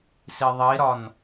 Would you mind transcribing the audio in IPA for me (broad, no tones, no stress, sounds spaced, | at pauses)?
s i ðˤ i ɾ ɒ n